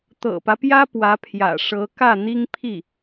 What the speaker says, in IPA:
t̪ ɤ̰˨˩ p ä˦ p j ä˥ p w ä˧˥ pʰ j ä̰˨˩ ʂ ɤ˧˥ k ä˥˩ n̪ i˥ ŋ pʰ i˥˩

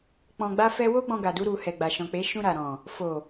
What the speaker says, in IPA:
k͡p ɔ̃˧ ɡ͡b a˦ f ɛ˦ w o˦ ɡ͡b ɔ̃˧ ɡ a˨ d u˧ ɾ u˨ h ɛ˨ ɡ͡b a˨ ʃ ɔ̃˨ k͡p e˨˦ ʃ ũ˧ ɾ a˨ ɾ ɔ̃˨ | f o˨

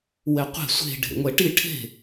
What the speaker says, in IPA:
w ɛ qʷ ɛ̤ sʷ e̤ ɖʱ ḛ ŋʷ ɛ ʈ i ʈʰ e̤

